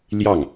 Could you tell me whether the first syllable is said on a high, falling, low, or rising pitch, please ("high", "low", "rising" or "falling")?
falling